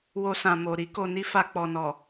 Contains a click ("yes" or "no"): no